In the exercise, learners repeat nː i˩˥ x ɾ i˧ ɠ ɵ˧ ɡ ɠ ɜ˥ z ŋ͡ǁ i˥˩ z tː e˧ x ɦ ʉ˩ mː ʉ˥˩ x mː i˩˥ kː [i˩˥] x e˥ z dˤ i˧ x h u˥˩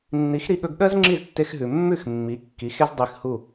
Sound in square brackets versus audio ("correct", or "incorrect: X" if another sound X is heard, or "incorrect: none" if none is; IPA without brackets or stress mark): correct